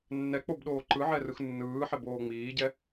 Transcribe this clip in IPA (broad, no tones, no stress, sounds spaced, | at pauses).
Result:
nː ɛ k͡p o b ɗ oː ǃ ɯ ʕ ɛ r ɯ x nː ɯː ħ ɛ b oː ŋ͡m iː ɟ ɛ